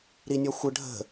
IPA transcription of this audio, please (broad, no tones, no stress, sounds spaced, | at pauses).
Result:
ɾ i nʲ ɔ xʷ ə ɖʱ ə̤